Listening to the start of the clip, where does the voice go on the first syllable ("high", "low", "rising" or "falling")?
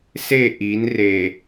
falling